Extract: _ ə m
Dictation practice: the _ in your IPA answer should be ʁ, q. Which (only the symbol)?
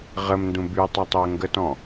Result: ʁ